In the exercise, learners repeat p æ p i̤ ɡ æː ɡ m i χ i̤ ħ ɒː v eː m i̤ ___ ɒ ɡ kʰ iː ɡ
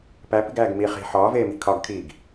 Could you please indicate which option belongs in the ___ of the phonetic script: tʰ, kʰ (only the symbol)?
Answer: kʰ